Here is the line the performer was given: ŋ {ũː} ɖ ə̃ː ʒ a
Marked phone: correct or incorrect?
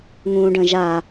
correct